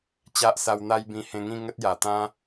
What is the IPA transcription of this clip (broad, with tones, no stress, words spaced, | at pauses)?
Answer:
t͡ɕa˦ʔsa˧wn̪a˦jbĩ˧ hẽ˧ŋĩ˥˧ŋə˦t̚ ja˨˩ t̪ã˦